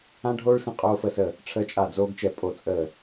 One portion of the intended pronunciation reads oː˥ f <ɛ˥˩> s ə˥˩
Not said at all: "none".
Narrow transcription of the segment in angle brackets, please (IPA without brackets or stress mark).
ə˥˩